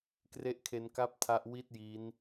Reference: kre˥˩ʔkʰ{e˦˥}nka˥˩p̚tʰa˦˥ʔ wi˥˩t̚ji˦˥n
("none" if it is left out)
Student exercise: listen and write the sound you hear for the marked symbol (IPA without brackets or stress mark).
e˦˥